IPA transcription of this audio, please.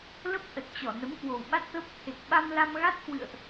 l ə˦˥ p̚ ʔ ə˨˩ t̚ t͡ɕ ɔ˧˩ n ə˨˦ m k w o˨˩ w ɓ a˦˥ t̚ t̪ əː˦˥ p̚ t̪ʰ e˨˩ k̚ ɓ a˧ m l a˧ m ɣ a˦˥ t̚ k w ɨ̰˧˨ ə̯ ʔ

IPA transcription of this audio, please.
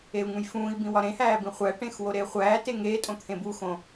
e u̯ ŋ ũ j f ũː i̯ b ĩ w ɒ ɾ ẽ h æː b ĩ χʷ æ ʈ ẽ x w o ɾ eː χʷ æː t e ŋ eː tʼ õ t̪ʰ ẽ b u x õ

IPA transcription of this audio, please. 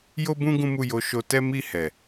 j o˦ b ũ˦ ɡ ũ˦ m u˦˨ j o˧ ʃ o˧ t ɛ˦ m i˦˨ h ɛ˨

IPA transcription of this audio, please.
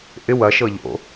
ʔ ɪ w ɐ ʃ ɤ ʎ o̰

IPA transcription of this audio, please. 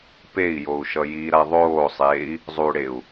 p e i̯ j o u̯ ʃ ʌ j i ɾ a ðˤ oː sˤ eː i̯ | zˤ u ɽ e u̯

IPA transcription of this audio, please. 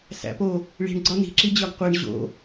s æ̰ p o | ɭ i̤ ɳ ɡ͡ǀ ɒ n i̤ ǁ i d͡ʑ ɒ ɡ qʷ e ɳ ʑ o̰

